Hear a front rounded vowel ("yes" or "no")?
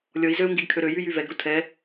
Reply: yes